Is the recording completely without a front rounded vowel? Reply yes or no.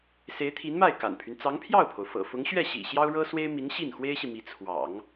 no